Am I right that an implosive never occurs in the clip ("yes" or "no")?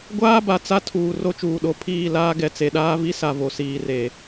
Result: no